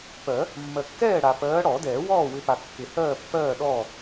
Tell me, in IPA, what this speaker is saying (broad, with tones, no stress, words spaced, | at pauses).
pɜ˨˩˦ | mːɜ˨kːɛː˥˨ɽa˨ pɜː˨˦ɽɔ˨˩˦dɛː˨˩˦wɔː˥˨ wɪ˨˦pa˨kːɪ˨˩˦ hɜː˥˨pːɜː˥˨ ɗɔː˥˨